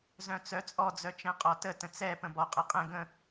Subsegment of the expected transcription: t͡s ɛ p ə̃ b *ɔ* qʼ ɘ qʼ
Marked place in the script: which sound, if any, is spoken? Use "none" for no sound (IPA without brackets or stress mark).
ɔ